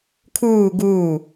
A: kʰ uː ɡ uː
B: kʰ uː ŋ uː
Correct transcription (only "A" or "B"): A